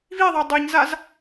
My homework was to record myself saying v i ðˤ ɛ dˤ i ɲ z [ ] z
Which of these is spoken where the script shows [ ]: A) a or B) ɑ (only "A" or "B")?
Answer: A